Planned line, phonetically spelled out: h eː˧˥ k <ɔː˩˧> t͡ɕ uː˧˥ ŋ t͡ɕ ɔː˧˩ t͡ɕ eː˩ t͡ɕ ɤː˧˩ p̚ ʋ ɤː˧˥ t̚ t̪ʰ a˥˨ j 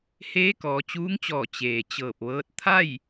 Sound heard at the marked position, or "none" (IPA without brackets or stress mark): ɔː˩˧